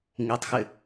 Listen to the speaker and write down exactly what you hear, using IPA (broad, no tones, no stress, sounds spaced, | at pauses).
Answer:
ŋ i tˤ x ɪ